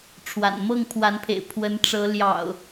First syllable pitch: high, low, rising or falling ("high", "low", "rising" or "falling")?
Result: low